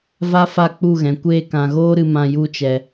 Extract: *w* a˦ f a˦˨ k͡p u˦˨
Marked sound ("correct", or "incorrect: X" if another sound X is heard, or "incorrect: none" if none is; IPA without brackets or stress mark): incorrect: v